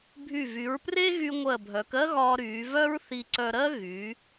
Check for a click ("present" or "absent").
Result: present